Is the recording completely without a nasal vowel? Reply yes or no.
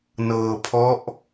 yes